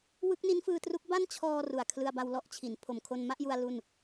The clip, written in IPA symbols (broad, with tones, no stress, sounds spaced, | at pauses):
w ɯ˦˥ k̚ n i˦˥ n f ɯː˧ t r u˦˥ k̚ b a˥˩ n t͡ɕʰ ɔː˧ r u˨˩ a̯ kʰ l ɯ˧ a̯ b a˧ w l ɔ˥˩ ʔ t͡ɕʰ i˩˦ n pʰ o˨˩ m kʰ o˧ n m a˥˩ ʔ j u˧ a̯ l u˥˩ n